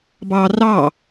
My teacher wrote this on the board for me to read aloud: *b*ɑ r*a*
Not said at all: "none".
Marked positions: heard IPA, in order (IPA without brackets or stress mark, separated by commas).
b, ɑ